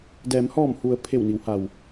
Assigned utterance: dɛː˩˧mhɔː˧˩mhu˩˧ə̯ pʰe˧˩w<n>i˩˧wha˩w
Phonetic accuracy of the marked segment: correct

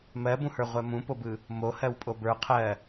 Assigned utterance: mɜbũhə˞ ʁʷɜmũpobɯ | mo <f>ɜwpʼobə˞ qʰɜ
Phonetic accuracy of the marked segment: incorrect: h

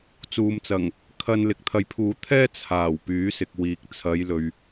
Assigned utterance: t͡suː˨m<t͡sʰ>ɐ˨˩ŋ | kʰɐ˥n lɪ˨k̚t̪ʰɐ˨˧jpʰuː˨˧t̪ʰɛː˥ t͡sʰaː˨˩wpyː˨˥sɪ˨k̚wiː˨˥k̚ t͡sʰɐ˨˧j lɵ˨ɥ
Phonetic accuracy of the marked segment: incorrect: t͡s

